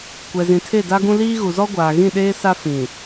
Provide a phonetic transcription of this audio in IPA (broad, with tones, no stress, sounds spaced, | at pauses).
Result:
kʷ ɛ˨ z ĩ˨ tʰ e˦˨ d a˦ ɡ ũ˦ l iː˦ ɣ u˨ z ɔ˦ ɡʷ aː˨ ɣ ĩ˦˨ ɗ eː˦ s a˦ f ĩ˨